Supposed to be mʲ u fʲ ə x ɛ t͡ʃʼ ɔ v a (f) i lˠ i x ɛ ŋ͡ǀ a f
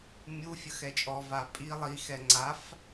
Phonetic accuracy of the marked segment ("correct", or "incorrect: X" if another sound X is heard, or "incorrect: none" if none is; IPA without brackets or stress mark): incorrect: pʼ